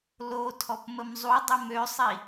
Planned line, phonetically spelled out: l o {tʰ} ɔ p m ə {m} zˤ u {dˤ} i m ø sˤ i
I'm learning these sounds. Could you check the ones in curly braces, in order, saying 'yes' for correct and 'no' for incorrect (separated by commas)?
yes, yes, yes